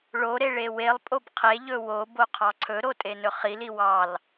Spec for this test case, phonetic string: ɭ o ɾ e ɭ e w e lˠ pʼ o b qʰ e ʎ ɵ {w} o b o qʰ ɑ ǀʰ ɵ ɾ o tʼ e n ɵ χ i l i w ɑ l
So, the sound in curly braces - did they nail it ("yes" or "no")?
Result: yes